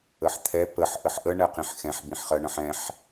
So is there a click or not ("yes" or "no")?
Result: no